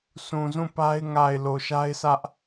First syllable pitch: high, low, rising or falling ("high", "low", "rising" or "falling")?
low